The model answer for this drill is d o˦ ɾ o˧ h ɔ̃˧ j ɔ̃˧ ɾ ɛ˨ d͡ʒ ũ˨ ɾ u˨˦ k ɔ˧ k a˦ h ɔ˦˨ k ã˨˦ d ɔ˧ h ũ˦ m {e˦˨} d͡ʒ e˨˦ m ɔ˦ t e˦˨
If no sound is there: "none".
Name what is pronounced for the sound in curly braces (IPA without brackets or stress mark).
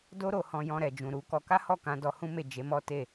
e˦˨